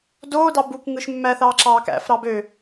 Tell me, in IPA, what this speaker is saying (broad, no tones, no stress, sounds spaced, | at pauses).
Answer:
d oː d ɑ b u k ŋ ɯ ʃ mː æ θ ɑː ǁ ɑː k æ̰ f ɾ ɑ b ø